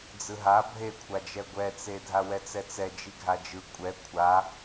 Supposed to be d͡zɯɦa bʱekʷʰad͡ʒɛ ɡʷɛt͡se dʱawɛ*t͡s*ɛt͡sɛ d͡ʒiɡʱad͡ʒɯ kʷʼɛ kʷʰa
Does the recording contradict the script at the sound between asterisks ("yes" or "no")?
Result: no